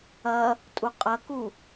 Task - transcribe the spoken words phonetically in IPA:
ɐ | tʼ u qʼ ɐ k u

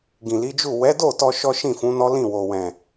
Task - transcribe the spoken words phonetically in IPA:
ɡ ĩ˨ l i˨˦ d͡ʒ u˦˨ w ɛ˨˦ d o˦˨ t ɔ˧ ʃ ɔ˦ ʃ ĩ˦˨ f ũ˨˦ n ɔ˦ l ĩ˦˨ w o˨ w ɛ̃˨

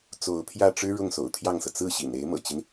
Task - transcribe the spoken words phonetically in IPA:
t͡s o˧˥ ʊ̯ pʰ j ä˥˩ ʈ͡ʂ ɻ̩˥ ɻ ʊ˥˩ ŋ s o̰˨˩ ʊ̯ t̪ʰ j ɑ˥˩ ŋ s ɤ˩ t͡s ɹ̩˥˩ ɕ ḭ˨˩ n e˧˥ ɪ̯ m ɤ̰˨˩ t͡ɕ i˦ n

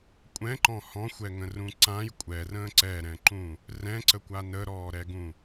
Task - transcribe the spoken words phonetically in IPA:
kʷʼ ɛ̃ ǃ ɔ̃ h ɔ̃ xʷ ɛ ŋ ə̃ r ũ ǀ ã j kʷʼ ɛ r ə̃ː ǀ ɛ ɾ ɛ̃ ǃ ũ | r ɛ̃ ǀ ə kʷ a n ə ɾ ɔː ɾ ɛ ɡ ũ

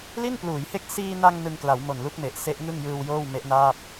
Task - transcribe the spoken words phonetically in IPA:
l i˥˩ n p l uː˩˦ j h e˦˥ k̚ s iː˧ n a˧ ŋ n ɯ˧ ŋ k l a˩˦ w m o˨˩ n l u˦˥ k̚ m e˨˩ ʔ s e˦˥ ʔ ŋ ɯ˥˩ ŋ j ɯː˧ w j oː˥˩ w m e˦˥ ʔ n aː˥˩ p̚

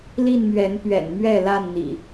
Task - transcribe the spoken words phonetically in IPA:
l i˥˨ n m ɥ ɛ˨˦ n p ɥ ɛ̰˨˩ n m ɥ ɛ˥˨ l a˥˨ n n̪ ḭ˨˩

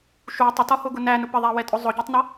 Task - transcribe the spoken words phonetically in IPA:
ʃ u tˤ ʊ t ɒ h ʊ ɡ ʊ n æ n ʊ p ə ðˤ æ w ɛ tʼ ʊ zˤ ʊ ɟ ɛ tˤ n ɒ

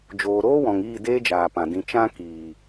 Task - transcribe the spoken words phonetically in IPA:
d͡ʒ oː˨ ɾ oː˦ w ɔ̃˨ ŋ iː˦˨ d eː˦ d͡ʒ aː˨ p ã˨ d ĩ˨ t͡ʃ ã˧ k iː˨

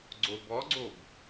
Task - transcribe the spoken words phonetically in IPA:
ɡ͡ǀ o b ɔ ɡ͡ǀ o b

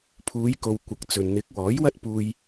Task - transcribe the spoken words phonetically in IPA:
pʰ uː˨˧ j k o˨ w kʷ ɐ˨˥ k̚ t͡s ɵ˨ n n̪ ɪ˨˥ k̚ w ɔː˨˥ j w ɐ˥ t̚ p uː˧ j

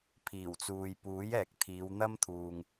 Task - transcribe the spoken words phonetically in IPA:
pʰ iː˨˩ w t͡s uː˨ j p uː˨˥ j ɛː˨ k̚ t̪ʰ iː˨˧ w n̪ ɐ˥ m t̪ʰ uː˨ ŋ

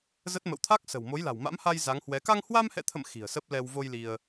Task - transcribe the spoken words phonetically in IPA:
z ə˦˥ t̚ m ə̰˧˨ w t̪ʰ a˦˥ k̚ s ə̤˨˩ w m o˨˦ j l a̤˨˩ w m a̰˧˥ m h a˧ j z a˨˦ ŋ h w ɛ˨˦ k a˧ ŋ h w a˧ m h ɛ̰˧˨ t̪ʰ ə̰˧˨ m x i̤˨˩ ə̯ s ə˦˥ p̚ l ɛ˧ w v o˧ j l i˧ ə̯

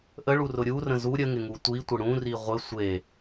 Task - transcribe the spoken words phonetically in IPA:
ʔ ə ɭ u r ʊ ɾʲ u r ə̃ z u ɾʲ ə ŋ ɪ ŋ u tʷ i tʷ ɪ ɽ ũ r i ʁʷ ɪ sʷ e

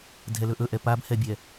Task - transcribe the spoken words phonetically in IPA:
dʱ ɛ l ɵ ʔ ɵ ʔ ɛ p a b h ɛ bʲ ɛ

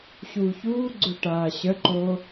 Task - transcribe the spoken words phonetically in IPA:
ɕ uː ç uː ɡ͡ǀ ʊ ʈ aː ɕ ə ǃ o

